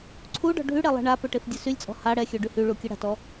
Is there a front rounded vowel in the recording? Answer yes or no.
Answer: yes